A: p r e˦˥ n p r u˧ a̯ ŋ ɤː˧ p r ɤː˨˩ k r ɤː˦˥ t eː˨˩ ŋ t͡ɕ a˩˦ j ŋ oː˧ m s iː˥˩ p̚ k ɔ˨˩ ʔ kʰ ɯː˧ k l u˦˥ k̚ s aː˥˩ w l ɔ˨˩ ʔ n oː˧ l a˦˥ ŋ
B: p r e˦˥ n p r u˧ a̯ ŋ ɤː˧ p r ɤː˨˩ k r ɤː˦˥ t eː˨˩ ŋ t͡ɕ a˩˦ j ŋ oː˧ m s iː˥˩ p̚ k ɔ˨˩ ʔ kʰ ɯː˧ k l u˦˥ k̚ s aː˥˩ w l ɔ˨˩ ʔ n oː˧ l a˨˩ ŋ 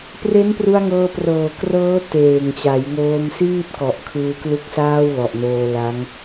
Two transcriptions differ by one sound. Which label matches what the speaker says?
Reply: A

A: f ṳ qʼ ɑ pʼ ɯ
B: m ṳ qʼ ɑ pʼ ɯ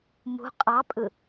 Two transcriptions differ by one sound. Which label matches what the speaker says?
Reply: B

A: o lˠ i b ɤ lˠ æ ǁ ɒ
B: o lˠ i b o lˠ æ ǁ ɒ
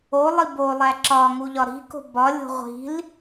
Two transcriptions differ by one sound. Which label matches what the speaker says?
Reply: B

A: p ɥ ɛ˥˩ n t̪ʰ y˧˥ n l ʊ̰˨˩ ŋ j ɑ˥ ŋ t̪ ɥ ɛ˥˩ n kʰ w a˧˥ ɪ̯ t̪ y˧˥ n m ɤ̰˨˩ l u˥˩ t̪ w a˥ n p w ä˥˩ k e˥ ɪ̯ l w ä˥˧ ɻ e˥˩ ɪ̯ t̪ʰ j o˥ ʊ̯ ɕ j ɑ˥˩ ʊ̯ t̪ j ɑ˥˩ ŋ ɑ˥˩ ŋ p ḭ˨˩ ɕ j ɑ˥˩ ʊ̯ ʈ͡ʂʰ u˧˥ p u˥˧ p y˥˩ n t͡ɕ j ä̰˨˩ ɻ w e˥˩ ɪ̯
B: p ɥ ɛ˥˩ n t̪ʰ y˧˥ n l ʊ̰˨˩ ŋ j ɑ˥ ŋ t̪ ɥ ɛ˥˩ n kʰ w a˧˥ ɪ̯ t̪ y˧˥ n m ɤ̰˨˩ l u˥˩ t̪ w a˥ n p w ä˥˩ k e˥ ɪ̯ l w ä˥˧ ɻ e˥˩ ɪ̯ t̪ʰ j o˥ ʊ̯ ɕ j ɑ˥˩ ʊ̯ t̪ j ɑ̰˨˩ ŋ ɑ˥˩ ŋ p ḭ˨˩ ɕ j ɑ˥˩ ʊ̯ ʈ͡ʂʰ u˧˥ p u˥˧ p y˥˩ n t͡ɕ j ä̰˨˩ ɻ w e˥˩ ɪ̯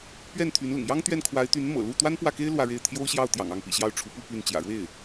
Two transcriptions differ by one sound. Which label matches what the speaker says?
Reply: B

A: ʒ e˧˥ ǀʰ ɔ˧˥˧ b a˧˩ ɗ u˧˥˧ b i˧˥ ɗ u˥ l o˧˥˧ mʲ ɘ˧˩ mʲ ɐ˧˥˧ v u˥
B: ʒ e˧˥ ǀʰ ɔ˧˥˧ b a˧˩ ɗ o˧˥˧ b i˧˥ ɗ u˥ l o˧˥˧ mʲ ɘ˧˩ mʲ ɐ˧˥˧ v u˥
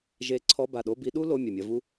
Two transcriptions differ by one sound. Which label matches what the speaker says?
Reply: B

